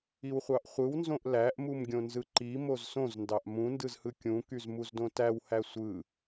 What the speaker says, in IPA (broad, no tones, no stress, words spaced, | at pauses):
iwχʷɑʔχʷɯwnzõʔ læʔmum ɡʲõnzɯǃi mozsõzndɑʔ mũndɯzhɯ kʲũkyz muzdõtæwhæ sʷɯ